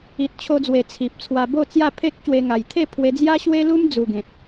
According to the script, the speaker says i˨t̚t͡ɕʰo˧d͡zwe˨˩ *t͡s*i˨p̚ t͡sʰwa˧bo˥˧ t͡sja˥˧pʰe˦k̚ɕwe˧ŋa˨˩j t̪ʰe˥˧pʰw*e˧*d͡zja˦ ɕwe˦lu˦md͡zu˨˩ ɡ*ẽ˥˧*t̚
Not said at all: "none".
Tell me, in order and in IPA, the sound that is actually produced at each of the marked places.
t͡sʰ, e˧, ẽ˨

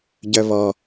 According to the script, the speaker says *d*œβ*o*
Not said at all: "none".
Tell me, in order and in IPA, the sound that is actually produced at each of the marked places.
ɟ, ɔ

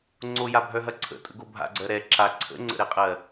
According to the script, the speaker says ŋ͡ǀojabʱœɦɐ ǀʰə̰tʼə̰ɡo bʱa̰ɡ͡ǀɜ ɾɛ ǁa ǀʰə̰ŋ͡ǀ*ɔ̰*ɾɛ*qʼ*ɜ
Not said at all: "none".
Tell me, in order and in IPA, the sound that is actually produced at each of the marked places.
ə̰, qʼ

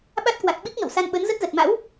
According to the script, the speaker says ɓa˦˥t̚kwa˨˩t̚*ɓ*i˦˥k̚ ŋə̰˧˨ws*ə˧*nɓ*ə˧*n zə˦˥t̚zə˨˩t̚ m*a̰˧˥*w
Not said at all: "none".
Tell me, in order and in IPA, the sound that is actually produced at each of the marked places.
ɓ, a˧, ə˨˦, a̰˧˥

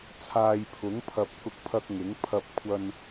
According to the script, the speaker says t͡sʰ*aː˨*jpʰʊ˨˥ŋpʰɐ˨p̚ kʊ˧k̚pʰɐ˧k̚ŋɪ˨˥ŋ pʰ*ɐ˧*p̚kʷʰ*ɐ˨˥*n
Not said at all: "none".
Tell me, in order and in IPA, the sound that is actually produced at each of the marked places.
aː˨, ɐ˧, ɐ˧

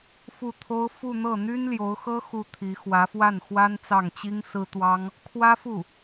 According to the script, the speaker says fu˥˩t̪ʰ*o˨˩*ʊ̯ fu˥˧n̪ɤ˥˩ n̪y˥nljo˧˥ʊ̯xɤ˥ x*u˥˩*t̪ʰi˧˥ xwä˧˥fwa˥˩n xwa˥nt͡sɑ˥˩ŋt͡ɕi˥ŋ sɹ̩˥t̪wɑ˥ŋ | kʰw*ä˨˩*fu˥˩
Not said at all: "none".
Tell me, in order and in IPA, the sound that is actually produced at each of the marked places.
o˥, u˥˩, ä˥

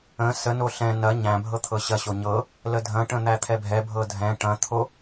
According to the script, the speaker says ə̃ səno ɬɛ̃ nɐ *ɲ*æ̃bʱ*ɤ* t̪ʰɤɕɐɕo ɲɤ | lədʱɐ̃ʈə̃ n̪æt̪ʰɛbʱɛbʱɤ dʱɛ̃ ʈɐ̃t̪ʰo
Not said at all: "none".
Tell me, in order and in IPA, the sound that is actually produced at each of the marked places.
ɲ, ɤ

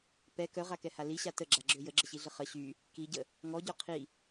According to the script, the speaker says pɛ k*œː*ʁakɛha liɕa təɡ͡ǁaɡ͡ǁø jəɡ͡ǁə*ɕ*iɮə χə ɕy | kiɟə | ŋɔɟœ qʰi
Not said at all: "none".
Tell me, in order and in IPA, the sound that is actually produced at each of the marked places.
œ, ɕ

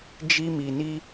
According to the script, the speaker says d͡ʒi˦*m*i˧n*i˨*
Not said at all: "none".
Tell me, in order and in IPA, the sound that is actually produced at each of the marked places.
m, i˦

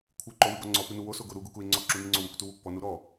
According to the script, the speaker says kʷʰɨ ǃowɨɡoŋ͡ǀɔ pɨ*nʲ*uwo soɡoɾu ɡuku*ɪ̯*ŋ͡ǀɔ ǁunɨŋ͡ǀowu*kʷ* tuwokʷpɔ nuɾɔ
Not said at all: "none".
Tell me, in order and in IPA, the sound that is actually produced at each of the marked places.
n, ɪ̯, kʷ

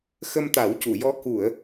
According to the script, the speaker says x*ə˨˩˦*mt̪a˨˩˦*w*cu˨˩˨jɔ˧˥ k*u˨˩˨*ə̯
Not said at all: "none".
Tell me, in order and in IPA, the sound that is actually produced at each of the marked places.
ə˧, w, u˨˩˨

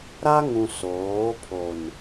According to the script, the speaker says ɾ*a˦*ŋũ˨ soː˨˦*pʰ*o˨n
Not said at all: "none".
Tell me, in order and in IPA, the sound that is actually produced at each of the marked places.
a˦, pʰ

